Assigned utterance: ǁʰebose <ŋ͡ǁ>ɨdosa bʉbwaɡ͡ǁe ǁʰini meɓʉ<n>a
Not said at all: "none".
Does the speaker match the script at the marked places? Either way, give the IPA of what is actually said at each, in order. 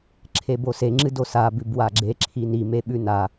ŋ͡ǁ, n

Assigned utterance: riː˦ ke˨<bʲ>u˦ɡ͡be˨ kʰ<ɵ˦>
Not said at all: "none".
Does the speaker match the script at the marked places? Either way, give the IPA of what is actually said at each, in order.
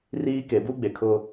b, ʊ˦

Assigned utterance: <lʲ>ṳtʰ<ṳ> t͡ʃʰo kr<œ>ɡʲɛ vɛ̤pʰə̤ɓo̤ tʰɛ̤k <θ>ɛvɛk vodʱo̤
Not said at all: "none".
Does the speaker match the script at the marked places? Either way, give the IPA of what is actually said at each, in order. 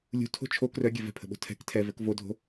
lʲ, o̤, œ, tʰ

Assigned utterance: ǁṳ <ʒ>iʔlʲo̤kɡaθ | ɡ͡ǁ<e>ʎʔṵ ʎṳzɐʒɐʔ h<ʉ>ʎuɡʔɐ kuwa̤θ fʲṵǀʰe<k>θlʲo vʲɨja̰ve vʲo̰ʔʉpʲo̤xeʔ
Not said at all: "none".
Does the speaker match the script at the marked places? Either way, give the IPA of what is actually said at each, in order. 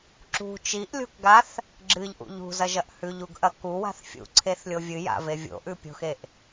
t͡ʃ, ɨ, ʉ, none

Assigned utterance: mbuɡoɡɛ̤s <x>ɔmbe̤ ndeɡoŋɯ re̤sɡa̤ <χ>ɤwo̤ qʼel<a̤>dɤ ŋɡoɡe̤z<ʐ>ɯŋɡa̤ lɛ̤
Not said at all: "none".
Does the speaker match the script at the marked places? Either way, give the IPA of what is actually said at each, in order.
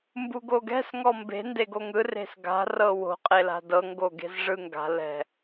ŋ, r, a̤, ʐ

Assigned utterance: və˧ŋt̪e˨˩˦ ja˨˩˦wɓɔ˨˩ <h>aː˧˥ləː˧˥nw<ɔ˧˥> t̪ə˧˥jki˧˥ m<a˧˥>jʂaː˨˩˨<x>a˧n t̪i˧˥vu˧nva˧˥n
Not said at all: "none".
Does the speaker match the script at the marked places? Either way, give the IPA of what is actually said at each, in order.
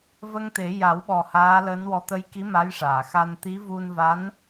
h, ɔ˧˥, a˧˥, x

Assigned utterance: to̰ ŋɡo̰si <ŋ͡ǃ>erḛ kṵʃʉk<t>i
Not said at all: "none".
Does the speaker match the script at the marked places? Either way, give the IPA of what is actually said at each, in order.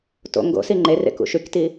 ŋ͡ǃ, t

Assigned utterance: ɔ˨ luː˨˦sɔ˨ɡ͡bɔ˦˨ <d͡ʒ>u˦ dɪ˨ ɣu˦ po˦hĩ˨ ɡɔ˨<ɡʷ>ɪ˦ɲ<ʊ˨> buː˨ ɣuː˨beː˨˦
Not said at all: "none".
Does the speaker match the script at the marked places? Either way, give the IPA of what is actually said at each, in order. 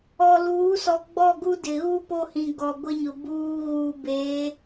ɡ, ɡʷ, ʊ˨

